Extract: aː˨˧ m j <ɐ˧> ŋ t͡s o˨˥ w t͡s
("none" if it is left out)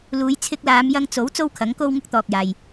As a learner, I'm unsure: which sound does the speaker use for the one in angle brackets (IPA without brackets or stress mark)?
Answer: ɐ˧